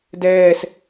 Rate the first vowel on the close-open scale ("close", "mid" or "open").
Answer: mid